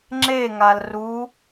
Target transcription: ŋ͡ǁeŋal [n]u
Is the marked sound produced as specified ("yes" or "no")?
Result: no